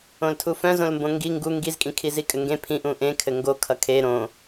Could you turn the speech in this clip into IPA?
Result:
õ l tʰ u f œ̃ z õ l m b õ ŋ ɡ i ŋ ɡ u ŋ ɡ i z kʼ ĩ kʰ i z i kʼ ɘ ŋ ɡ ẽ pʰ ĩ ʔ ũ ʔ ẽ kʰ ɘ ŋ ɡ o kʰ ʌ kʰ e ɾ õ

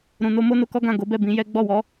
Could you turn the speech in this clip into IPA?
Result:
ɾ ũ˨ n o˧ m o˦ n o˧ k ɔ˦ ɡ ã˦˨ ɡ o˨˦ b ɛ˦˨ b ĩ˨˦ j ɛ˦ ɡ͡b ɔ˦˨ w ɔ˨˦

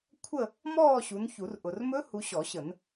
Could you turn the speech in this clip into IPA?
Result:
kʷʰ ə˥˧ | m ɔː˥˧ ɕ u˨˦ n ç u˨˩˦ r ʔ ʊ˨ r m ɵ˦˥ h u˨˦ ɕ ɔ˨˩˦ ɕ ə˨˩˦ n

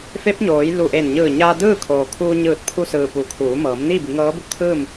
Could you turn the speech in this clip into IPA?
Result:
f e˧˥ p̚ ɲ oː˩˧ j l u˧˩ ʔ e˧˩ n ɲ ɯː˧˩ ɲ aː˧ d ɯː˥˨ kʰ oː˩ kʰ uː˧ ɲ ɯː˧˩ t̚ pʰ u˧ s ɯː˩ p uː˩˧ kʰ uː˩˧ m ɤː˩˧ m n iː˥˨ b i˩˧ ŋ ɤː˧˥ b u˧ t̪ʰ ɯː˥˨ m

